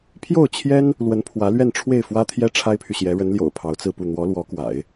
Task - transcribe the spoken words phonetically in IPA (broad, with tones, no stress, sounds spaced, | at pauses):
pʰ j o˥˩ ʊ̯ t͡ɕʰ j ɛ˥ n | l w ə˧˥ n pʰ w ä˧˥ l ɥ ɛ˥˧ n ʈ͡ʂʰ w e˥˩ ɪ̯ f w ä˥ t̪ʰ j ɛ˥ ʈ͡ʂʰ a˥ ɪ̯ pʰ y˨ ɕ j ɛ˧˥ ɻ ə˧˥ n l j o̰˨˩ ʊ̯ pʰ ɑ˧˥ ʊ̯ t͡s ɹ̩˥˧ p u˥˩ n̪ w ɔ˧˥ l w ɔ˧˥ k w a̰˨˩˦ ɪ̯